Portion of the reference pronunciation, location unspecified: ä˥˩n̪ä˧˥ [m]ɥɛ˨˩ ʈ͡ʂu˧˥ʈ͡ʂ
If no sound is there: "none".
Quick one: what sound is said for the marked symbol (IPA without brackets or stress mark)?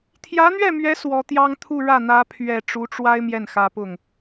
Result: pʰ